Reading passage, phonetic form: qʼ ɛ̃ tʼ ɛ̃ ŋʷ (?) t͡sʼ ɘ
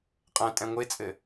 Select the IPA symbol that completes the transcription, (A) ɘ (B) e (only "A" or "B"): B